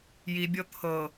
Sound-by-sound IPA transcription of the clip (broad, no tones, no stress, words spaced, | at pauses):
jibʲɤ t̪ʰɤ